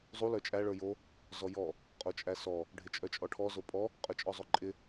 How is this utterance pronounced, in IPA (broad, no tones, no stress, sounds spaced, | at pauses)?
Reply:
zˤ u l œ t͡ʃʼ æ ɭ ə˞ j o | z ɔ j ɔ | qʼ o t͡ʃʼ æ s ɔ | ɖʱ ɪ t͡ʃʼ œ t͡ʃʼ ɔ ʈʰ ɔ z o pʼ ɔ | qʼ œ t͡ʃʼ ɔ zˤ o ǃʼ ɪ